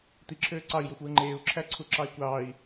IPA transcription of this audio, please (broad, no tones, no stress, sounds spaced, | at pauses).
t̪ i ǁʰ øː ǀ ɑ i̯ j o xʷ w ɯ ŋ͡ǃ eː u̯ ǁʰ æ ǀʰ u ǁ ɑ i̯ kʷ ɑː i̯